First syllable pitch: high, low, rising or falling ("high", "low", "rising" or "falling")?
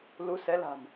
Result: rising